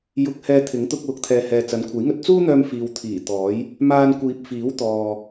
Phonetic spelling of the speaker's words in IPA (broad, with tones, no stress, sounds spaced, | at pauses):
j ʊ˨˥ k̚ h ɛː˧ t̪ʰ ɪ˨˥ ŋ t̪ ʊ˧ k̚ w ʊ˨˥ k̚ t̪ʰ ɛː˨ h ɛː˨ t͡s ɐ˨˧ n kʷʰ ɐ˨˥ j ŋ ɵ˧ t̚ t͡s uː˥ n̪ œː˧ m f iː˨ w t̪ʰ iː˨˩ t̪ ɔː˨˥ j | m aː˧ n kʷ iː˨ p̚ f iː˨˥ w t̪ ɔː˨